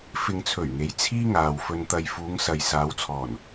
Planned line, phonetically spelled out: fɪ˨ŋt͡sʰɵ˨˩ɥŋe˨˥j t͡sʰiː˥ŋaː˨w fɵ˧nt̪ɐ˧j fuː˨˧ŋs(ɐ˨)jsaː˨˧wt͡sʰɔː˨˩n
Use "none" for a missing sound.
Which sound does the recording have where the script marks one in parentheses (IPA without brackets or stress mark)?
ɐ˨